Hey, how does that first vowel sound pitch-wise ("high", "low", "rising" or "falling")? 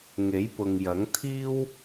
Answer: rising